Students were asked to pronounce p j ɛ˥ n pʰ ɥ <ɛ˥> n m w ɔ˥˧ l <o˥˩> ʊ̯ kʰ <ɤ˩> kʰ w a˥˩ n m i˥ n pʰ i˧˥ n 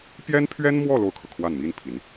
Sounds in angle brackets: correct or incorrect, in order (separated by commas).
correct, correct, correct